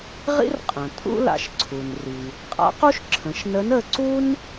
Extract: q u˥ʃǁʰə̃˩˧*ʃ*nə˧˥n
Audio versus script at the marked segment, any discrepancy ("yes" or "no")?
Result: no